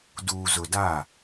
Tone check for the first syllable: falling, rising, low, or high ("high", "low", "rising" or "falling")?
low